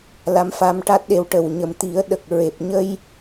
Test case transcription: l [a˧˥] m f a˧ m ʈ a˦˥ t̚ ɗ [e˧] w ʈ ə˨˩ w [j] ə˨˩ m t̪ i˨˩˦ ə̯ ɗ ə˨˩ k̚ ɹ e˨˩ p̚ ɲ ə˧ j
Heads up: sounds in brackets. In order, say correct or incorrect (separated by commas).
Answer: correct, correct, incorrect